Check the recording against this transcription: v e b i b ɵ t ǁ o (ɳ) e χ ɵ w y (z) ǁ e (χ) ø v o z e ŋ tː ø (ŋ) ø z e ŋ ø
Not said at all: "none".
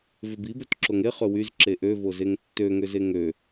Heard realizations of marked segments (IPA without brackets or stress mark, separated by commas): ŋ, z, ʔ, ŋ